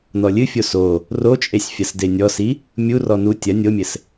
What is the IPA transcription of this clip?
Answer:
n ɔ lʲ ɨ fʲ o s o | r o t͡ʃʼ e sʲ fʲ ɐ s d e nʲ ɔ s i | mʲ u r ɔ n u tʲ ɐ nʲ o mʲ ɘ s

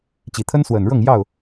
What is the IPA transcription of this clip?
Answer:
t͡ɕ i˨˩ t̪ʰ ə˦ n s w ə˨˩ n ɻ ɤ˥˨ ŋ j ɑ˥˨ ʊ̯

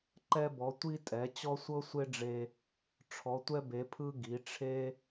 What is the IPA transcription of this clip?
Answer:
ǃ ɛ˧ b ɔ˩˧ tʷ i˧ tʼ ɛ˩˧ t͡ɕ ɔ˧ sʷ ɤ˧ sʷ e˧ ɖ͡ʐ e˧ | ʈ͡ʂʰ ɔ˩˧ tʷ ɛ˧ b e˩˧ pʰ ɯ˧ ɡ i˩˧ ʈ͡ʂʰ e˧

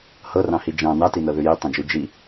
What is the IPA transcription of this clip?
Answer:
h ɤ r ɑ̃ h i d͡ʒ ɑ̃ n ɑ t i n ɤ ð ʉ j i tˤ ẽ d͡ʒ ʉ d͡ʒ i

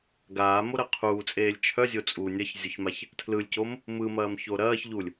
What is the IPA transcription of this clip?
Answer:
ɡ aː m o ɾ ɐ qʰ uː t͡sʼ eː lʲ t͡ʃʰ œ zʲ o t͡sʼ u nʲ ɐ ç zʲ o ç m a ç | tʰ l ɯ lʲ c o m | m ɯ m ɐː m ç o ɾ ɐː ç ʎ u lʲ

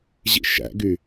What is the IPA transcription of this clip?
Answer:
ʑ ḭ ʃ æ̰ ɡ y

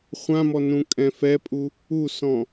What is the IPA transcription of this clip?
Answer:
χʷ ã m ɔ n ũ kʼ ɛ̃ f ɛ pʼ u | u s ɔ̃

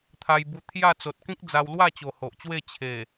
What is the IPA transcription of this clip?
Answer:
t̪ʰ a˧ j b u˧ t̪ʰ j a˥˧ t͡s o˨ t̚ k ĩ˦ k̚ d͡z a˧ w l w a˥˧ t͡ɕ o˨˩ h o˨ ʔ t͡ɕ w e˥˧ t͡ɕʰ e˨˩

